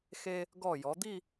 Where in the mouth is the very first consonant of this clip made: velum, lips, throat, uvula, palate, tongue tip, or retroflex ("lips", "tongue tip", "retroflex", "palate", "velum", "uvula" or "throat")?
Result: velum